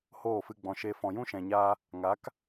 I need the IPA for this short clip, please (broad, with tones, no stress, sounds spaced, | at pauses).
h oː˦˨ f ɨ˧ ɡ͡b ɔ̃˨ ʃ eː˧ f ɔ̃˨ j ũ˦ ʃ ɛ̃˨ ɲ aː˧ | ŋ a˨˦ k